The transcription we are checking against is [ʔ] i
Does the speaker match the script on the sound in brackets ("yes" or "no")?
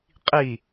no